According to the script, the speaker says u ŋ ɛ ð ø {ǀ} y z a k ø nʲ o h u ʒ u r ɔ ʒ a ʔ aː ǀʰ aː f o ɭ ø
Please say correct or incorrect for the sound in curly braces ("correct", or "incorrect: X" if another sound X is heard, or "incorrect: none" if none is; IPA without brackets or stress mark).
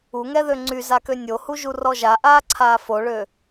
incorrect: ŋ͡ǀ